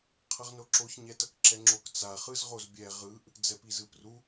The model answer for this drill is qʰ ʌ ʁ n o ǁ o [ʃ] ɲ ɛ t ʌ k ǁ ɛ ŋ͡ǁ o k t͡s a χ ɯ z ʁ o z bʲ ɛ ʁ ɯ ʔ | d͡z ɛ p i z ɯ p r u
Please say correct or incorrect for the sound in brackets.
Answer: incorrect: ç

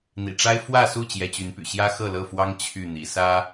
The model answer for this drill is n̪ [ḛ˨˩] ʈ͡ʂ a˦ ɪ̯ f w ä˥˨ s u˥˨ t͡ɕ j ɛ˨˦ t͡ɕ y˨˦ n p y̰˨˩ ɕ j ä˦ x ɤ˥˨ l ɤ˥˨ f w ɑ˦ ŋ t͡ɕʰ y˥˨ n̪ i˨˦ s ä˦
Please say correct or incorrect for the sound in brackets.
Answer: incorrect: ḭ˨˩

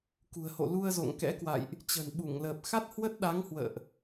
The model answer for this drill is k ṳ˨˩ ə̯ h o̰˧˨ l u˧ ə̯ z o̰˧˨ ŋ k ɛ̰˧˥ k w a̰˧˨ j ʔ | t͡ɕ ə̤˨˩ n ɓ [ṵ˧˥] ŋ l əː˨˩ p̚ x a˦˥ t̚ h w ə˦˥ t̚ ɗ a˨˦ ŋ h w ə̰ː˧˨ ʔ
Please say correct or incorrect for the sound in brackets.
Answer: incorrect: u˧˩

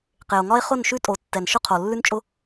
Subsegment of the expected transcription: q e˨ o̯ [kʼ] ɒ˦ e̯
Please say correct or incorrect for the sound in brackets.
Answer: incorrect: ŋ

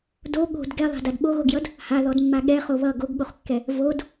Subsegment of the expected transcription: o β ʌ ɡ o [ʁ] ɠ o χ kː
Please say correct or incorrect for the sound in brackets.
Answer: incorrect: ɡ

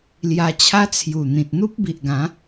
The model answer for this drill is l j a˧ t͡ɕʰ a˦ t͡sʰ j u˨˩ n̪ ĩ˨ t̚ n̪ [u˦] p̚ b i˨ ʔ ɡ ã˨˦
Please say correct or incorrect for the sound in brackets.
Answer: correct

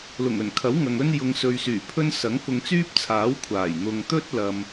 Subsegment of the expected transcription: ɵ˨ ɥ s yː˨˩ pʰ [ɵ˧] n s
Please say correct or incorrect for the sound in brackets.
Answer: incorrect: ɵ˥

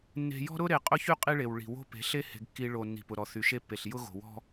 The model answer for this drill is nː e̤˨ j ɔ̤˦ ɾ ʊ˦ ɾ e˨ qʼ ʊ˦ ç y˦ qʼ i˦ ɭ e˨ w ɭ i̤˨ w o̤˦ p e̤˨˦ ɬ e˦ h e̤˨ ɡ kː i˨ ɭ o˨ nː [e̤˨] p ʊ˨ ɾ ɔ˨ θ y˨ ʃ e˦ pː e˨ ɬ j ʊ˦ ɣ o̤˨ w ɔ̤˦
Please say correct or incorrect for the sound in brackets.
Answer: incorrect: i̤˨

